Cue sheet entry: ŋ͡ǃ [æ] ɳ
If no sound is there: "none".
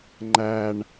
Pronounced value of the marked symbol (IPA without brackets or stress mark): æ